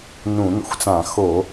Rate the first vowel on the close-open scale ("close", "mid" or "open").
close